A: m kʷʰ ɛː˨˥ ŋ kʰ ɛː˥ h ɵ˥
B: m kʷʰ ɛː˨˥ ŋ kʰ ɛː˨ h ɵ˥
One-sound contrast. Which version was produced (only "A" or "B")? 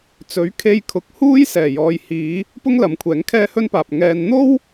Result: A